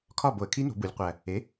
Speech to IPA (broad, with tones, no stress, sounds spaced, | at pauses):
kʰ ɒ˥˨ b o˧˩˧ ə̯ kʰ i˦˥ n o̤˩˧ b u˩˧ lʲ qʷ æ˨˩ | e˩˥